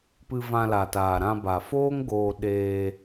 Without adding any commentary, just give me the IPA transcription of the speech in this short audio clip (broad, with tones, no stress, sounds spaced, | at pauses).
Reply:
p ɨ˧ v ã˧ l a˨ t aː˨ ɾ ã˧ b a˨ f oː˦ ŋ ɡ oː˧ ɗ eː˧